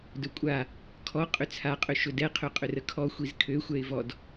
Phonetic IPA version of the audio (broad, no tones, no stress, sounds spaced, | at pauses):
d ɵ kʷʼ a | kʰ ɔ qʼ ʏ t͡sʰ a qʼ ø ʃ ɵ d ɛ qʰ ø qʼ ʏ r ə kʰ ɔ xʷ i z kʰ ø xʷ ɛ ɪ̯ v ɔ d